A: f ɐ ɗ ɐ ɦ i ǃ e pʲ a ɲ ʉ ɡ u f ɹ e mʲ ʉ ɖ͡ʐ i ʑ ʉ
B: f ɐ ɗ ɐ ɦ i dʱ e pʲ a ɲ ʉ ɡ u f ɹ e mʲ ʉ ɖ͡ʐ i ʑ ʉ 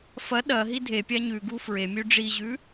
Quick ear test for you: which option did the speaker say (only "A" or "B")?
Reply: B